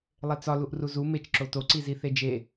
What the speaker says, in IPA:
lˠet͡sɒ luʔruzu met͡ʃ ǁoto ǀiziθed͡ʒe

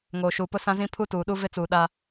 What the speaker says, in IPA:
ŋoː˨ʃuː˨pʊ˦ sã˦zĩ˦ pʰu˦tuː˨ɗu˦ vɪ˦t͡suː˨ ɗa˦

